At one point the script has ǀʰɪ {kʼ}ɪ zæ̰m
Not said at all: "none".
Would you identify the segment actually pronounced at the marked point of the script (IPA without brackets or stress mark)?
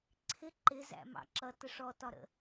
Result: ǃ